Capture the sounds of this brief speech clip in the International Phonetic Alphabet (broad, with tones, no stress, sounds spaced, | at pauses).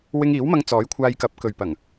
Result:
w ɪ˧ ŋ iː˨˥ w m ɐ˧ ŋ t͡s ɔː˨˥ j kʷʰ aː˧ j k ɐ˨˥ p̚ k ɵ˨ ɥ p ɐ˨˩ ŋ